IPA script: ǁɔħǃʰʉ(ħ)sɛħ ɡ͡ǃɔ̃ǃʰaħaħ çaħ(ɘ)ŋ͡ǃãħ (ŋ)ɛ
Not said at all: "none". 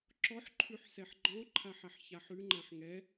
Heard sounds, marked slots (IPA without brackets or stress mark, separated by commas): ħ, ʉ, ŋ